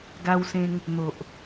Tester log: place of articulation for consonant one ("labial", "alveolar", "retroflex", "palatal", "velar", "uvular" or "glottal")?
velar